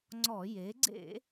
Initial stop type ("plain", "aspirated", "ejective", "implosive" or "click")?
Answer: click